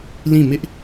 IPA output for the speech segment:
l ĩ˦˨ m ɪ˦ ʔ

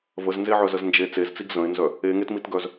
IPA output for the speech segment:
v ə z n z e ʕ œ z ə z n d͡ʒ e t͡s e z t͡s i ɡ z ə̃ ɪ̯ n z œ | e ŋ e t m i t ɡ œ z

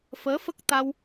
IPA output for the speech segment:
f əː˧˥ f ə˦˥ k̚ t̪ a˧ w

